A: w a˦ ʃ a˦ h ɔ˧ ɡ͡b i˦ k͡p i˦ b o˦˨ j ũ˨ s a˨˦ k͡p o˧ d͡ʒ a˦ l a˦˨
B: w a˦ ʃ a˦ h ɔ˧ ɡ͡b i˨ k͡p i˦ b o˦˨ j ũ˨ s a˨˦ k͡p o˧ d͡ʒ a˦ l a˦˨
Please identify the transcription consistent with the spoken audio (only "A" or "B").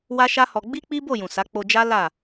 A